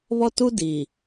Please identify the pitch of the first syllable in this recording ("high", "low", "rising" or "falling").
high